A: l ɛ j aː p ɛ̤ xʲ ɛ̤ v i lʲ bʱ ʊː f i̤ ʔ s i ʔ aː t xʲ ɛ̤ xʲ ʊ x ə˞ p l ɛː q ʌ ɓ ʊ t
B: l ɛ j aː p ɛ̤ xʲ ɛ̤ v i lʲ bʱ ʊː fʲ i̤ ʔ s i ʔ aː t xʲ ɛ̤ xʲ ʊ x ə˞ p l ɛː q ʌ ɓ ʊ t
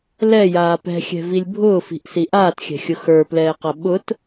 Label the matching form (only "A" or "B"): A